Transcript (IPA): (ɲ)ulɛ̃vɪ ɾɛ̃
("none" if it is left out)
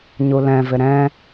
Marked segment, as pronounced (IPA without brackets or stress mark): ɲ